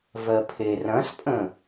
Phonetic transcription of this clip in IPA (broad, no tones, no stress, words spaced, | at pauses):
vɜpʰe rɐ̃spʼə̃